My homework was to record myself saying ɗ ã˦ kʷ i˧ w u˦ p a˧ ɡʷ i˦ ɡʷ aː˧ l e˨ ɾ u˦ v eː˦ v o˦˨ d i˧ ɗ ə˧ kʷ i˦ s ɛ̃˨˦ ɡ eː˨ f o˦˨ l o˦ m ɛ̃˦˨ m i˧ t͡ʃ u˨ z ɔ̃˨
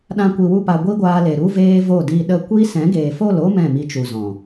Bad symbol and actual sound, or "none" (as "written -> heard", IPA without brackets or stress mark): none